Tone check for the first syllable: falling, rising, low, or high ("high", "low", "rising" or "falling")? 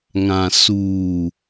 low